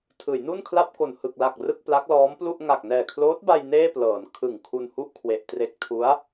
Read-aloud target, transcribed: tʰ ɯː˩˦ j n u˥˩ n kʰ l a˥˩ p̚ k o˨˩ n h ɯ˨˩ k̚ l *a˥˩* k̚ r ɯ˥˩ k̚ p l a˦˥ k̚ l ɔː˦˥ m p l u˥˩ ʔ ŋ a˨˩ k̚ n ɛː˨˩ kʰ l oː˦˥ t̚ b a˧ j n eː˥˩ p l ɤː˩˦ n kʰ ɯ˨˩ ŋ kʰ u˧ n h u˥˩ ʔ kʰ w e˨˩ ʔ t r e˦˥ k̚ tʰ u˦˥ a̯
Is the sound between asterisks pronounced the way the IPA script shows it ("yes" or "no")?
no